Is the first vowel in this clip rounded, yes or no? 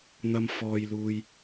no